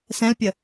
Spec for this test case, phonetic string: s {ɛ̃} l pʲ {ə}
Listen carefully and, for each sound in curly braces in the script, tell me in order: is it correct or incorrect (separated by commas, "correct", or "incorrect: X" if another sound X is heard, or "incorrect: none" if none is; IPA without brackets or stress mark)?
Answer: correct, correct